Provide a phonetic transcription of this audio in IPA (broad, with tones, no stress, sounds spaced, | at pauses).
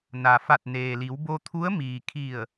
n a˩ f a˧˩ t̚ n eː˩ l i˩˧ w b o˧ t̪ʰ u˧˥ ə̯ m iː˩ kʰ i˧˩ ə̯